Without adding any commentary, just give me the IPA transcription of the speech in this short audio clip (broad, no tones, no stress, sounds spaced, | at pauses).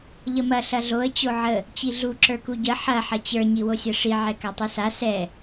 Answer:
ʎ ə m ɐ ɬ ɐ ɮ o ə̯ t͡ɕ o ʕ ə | t͡ɕ i ɮ u ǁ ə˞ k u ɟ ə ħ ɐ ħ ɐ t͡ɕ ə˞ ɲ i w o sʲ ɐ ʂ i ʕ ɛ k a tˤ u s a s ɛ